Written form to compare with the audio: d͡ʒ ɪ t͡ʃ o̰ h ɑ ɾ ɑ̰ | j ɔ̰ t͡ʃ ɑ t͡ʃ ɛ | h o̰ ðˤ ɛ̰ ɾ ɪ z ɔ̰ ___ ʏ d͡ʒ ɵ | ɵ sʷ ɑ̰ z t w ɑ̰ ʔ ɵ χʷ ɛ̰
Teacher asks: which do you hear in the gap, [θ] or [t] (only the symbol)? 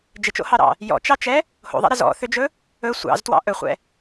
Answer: θ